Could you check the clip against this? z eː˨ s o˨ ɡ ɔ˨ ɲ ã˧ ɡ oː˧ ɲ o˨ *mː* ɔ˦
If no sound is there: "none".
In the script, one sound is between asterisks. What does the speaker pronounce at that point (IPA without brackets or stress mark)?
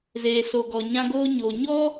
ɲ